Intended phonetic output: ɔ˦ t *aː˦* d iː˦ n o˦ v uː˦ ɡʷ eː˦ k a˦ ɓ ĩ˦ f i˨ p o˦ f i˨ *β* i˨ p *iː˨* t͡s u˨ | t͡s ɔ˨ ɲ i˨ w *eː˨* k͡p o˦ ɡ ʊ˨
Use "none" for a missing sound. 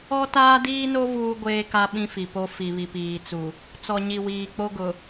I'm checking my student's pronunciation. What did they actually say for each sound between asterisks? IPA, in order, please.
aː˦, β, iː˨, iː˨

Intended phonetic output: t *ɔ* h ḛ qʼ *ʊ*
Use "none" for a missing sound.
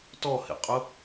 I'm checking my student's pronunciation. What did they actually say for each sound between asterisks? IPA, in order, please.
ɔ, ʊ

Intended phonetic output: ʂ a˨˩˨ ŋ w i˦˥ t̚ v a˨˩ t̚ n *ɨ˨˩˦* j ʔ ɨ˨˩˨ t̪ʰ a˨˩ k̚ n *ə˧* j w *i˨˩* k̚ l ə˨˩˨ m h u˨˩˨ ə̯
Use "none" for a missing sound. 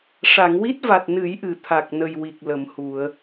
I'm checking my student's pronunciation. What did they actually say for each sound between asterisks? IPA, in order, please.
ɨ˨˩˦, ə˨˩, i˨˩

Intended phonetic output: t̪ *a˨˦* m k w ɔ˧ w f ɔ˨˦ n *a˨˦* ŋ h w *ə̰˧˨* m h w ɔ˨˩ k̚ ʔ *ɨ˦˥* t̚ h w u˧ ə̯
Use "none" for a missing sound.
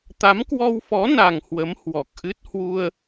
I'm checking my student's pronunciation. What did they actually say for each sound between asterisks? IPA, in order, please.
a˨˦, a˨˩, ə˨˦, ɨ˦˥

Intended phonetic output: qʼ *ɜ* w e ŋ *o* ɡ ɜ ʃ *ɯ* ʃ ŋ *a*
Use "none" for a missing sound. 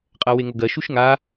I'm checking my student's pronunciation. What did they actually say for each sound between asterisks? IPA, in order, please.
ɜ, o, u, a

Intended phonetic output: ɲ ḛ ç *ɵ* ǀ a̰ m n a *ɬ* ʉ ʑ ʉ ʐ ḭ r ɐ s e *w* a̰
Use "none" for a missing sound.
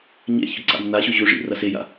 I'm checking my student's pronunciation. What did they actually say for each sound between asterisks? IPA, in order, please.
ɵ, ɕ, j

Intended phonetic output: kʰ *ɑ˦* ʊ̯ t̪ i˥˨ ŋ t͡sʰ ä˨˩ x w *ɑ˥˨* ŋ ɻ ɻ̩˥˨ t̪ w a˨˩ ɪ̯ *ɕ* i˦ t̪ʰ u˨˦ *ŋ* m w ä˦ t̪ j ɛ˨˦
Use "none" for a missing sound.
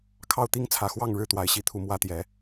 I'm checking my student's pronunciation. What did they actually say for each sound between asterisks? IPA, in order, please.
ɑ˥˨, ɑ˥˨, ɕ, none

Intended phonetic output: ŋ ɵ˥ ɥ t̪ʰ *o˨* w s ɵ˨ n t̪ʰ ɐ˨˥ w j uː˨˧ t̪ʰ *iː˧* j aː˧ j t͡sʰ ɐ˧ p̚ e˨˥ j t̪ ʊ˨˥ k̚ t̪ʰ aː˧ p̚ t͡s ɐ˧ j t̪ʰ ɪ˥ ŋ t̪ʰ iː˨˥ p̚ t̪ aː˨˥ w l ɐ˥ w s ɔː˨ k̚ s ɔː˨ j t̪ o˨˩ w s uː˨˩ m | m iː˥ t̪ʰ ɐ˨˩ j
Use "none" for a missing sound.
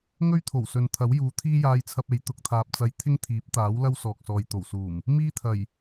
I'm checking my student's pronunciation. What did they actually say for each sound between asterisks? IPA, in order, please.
o˨˩, iː˥

